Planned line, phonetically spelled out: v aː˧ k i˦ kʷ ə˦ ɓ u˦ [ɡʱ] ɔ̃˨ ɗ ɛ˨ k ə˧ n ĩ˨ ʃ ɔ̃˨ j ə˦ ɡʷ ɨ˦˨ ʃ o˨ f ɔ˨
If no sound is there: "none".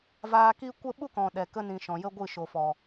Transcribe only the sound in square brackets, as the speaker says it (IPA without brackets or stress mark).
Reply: k